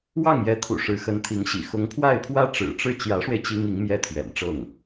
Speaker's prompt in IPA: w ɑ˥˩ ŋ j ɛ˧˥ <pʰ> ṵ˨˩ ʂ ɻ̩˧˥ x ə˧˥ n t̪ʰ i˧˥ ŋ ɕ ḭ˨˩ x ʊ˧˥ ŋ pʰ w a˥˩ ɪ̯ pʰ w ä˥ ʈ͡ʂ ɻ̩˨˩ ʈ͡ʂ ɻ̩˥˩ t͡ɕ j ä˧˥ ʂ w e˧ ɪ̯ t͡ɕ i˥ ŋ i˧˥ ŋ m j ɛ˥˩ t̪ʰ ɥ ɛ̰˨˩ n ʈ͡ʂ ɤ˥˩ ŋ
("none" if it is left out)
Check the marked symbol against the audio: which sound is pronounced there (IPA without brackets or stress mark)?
t̪ʰ